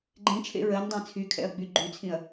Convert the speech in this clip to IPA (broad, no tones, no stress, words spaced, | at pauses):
ɡ͡ǃẽt͡ʃʰḛ ɹɜndˤẽ t͡sʰykʰɛ̰ɐ̯ɡ͡by ɡ͡ǃyt͡sʰĩɐ̯